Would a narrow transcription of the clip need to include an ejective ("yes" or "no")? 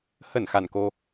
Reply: no